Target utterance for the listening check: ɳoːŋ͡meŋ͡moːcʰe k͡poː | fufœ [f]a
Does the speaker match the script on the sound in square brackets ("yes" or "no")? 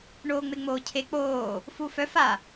yes